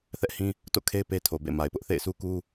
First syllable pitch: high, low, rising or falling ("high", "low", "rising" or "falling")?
high